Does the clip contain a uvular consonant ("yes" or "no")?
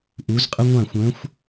yes